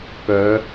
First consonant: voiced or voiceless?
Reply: voiceless